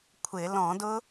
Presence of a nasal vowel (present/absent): present